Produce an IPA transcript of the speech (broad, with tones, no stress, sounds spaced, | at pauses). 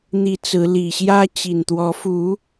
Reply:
n̪ i˨˦ t͡s ɹ̩˨˦ l i˨˩ ɕ j ä˦ t͡ɕ i˨˩ n t̪ w ɔ˨˦ f u˨˦